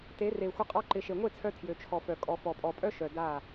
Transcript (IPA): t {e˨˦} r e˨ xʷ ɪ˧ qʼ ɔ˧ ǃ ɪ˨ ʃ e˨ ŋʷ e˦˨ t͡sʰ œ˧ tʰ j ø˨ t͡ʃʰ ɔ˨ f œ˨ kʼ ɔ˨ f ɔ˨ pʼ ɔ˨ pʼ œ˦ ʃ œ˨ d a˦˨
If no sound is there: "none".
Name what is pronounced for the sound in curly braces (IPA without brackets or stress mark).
e˨˦